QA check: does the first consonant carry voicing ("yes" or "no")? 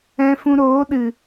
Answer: no